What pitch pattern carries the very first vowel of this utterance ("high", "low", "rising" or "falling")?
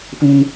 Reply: high